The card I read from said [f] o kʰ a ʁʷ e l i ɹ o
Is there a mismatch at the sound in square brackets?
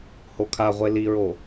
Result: yes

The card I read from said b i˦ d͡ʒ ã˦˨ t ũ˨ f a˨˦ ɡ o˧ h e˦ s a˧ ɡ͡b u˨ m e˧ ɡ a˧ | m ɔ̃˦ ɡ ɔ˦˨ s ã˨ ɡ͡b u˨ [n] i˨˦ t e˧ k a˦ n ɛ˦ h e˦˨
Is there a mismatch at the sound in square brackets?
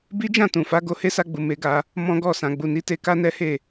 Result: no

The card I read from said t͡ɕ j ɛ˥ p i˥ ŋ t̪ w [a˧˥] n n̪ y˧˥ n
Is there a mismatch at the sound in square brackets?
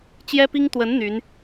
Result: yes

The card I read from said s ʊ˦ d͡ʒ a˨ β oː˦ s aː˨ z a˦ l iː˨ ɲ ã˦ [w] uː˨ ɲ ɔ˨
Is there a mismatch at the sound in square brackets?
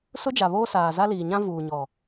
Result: yes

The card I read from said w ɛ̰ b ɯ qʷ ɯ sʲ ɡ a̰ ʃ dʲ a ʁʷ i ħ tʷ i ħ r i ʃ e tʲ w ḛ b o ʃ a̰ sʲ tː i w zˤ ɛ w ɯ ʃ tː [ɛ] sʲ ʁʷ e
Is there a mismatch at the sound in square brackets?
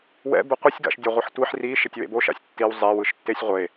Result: yes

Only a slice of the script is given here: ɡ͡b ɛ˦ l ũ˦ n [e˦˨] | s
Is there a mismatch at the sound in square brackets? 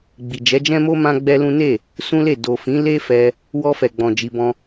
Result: no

